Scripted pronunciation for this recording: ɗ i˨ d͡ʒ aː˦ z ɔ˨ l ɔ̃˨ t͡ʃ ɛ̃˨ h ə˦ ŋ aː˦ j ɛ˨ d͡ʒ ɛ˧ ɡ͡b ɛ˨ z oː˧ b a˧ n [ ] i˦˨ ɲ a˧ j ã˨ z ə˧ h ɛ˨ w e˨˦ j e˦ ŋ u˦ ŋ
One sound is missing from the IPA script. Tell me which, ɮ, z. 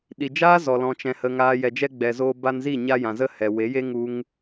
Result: z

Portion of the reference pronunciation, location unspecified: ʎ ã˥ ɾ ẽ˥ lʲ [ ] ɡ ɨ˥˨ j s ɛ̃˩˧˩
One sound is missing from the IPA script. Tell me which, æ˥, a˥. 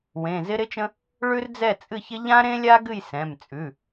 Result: a˥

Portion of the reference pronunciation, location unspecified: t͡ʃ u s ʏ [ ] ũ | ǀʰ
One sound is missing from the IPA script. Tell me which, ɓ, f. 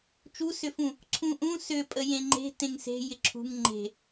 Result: f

